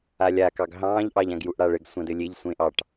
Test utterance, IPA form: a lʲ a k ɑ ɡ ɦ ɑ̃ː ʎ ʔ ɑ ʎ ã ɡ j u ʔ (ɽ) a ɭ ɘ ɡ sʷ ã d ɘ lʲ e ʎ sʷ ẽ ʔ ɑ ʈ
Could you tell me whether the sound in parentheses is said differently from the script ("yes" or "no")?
no